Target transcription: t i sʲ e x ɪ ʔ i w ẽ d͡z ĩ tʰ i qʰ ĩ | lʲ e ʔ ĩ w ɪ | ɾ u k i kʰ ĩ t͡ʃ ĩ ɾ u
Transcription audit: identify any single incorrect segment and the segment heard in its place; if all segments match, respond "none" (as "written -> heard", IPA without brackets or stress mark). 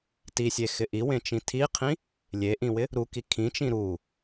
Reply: d͡z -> t͡ʃ